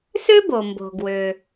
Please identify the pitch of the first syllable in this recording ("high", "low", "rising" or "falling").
high